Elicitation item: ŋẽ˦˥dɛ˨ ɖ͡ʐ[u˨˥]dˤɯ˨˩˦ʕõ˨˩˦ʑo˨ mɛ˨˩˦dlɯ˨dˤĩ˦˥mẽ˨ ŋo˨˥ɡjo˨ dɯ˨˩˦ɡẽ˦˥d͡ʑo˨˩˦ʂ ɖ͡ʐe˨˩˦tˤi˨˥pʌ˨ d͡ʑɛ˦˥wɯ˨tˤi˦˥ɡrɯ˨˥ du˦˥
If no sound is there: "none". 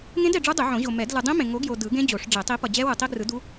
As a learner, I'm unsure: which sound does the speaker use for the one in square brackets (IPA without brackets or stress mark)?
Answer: u˦˥